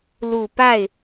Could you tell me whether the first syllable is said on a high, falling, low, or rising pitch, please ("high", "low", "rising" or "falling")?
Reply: low